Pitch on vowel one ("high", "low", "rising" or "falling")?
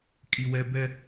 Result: high